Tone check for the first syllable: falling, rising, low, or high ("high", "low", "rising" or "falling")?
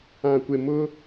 low